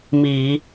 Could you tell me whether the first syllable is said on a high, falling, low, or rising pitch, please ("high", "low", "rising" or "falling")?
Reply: low